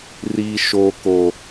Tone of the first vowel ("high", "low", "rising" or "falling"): high